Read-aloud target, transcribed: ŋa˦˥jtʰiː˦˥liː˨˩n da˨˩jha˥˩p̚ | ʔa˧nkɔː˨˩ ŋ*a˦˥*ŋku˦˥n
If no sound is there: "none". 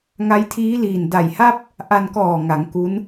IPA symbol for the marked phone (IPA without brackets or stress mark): a˩˦